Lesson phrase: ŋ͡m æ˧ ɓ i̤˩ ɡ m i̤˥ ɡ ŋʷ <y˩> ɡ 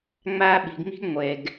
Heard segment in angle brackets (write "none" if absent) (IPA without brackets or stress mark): e˩